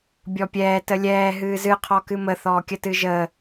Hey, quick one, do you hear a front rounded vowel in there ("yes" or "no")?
no